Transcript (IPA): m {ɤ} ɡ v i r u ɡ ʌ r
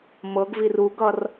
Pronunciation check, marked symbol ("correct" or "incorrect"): correct